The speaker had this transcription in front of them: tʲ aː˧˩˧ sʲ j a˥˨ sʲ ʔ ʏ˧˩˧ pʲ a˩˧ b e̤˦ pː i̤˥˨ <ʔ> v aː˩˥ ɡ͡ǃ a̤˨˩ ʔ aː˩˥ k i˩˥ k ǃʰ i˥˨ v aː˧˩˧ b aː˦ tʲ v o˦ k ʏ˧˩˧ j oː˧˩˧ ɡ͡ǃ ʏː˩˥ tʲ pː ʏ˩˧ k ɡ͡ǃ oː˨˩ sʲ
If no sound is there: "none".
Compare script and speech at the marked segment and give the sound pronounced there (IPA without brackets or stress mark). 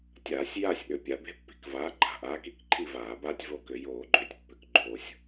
k